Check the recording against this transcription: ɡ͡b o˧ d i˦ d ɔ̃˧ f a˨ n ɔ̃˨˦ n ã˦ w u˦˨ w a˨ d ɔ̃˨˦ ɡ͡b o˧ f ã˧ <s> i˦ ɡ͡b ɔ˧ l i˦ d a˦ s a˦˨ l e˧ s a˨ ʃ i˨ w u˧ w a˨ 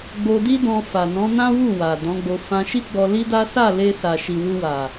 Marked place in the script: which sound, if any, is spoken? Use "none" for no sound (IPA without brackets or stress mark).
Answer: ʃ